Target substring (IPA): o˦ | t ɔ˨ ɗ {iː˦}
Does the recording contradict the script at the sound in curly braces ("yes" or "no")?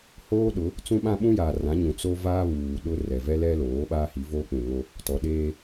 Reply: yes